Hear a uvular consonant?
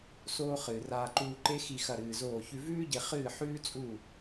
yes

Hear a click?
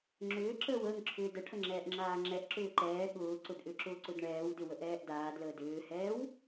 yes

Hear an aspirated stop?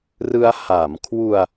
yes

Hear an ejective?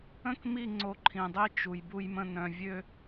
no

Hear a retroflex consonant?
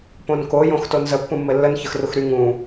no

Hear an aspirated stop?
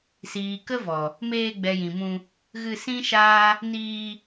no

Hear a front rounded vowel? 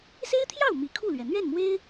no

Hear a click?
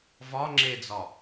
yes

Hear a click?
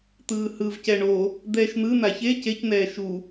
no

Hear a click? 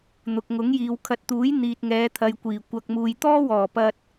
no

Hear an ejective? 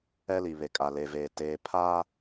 yes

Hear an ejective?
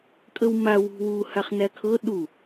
yes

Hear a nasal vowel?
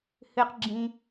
yes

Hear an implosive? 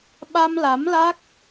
yes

